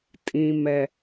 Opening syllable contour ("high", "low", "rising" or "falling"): low